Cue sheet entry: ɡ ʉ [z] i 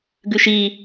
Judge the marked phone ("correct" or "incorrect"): incorrect